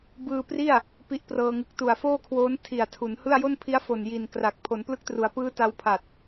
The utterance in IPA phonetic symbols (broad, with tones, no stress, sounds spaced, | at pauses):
b ɯː˧ p r i˥˩ a̯ | p i˦˥ ʔ p r ɤː˧ ŋ ɯ˨˩ k̚ t u˨˩ a̯ f oː˥˩ kʰ w oː˦˥ n tʰ i˨˩ a̯ tʰ u˩˦ n h ɯ˥˩ a̯ j o˥˩ n pʰ i˦˥ a̯ f o˨˩ n j i˨˩ n k r a˨˩ k̚ pʰ o˩˦ n p l ɯ˦˥ k̚ t r u˩˦ a̯ p ɯː˦˥ t a˧ w pʰ a˨˩ t̚